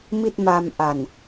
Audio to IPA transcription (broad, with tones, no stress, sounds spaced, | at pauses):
m i˥˩ t̚ m a˧ m ʔ a˨˩ n